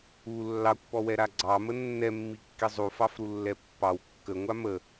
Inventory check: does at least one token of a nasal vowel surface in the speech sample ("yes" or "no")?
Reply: no